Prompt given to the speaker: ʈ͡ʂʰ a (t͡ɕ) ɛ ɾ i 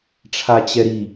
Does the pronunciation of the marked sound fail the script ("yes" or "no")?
no